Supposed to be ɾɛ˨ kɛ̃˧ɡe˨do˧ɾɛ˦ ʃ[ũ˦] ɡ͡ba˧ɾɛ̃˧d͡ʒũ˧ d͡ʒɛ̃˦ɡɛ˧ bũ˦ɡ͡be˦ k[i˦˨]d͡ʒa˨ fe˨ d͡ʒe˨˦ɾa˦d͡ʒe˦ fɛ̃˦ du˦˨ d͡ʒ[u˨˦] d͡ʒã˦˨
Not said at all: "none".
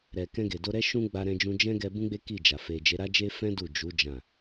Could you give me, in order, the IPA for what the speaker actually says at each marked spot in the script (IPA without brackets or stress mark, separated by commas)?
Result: ũ˦, i˦˨, u˨˦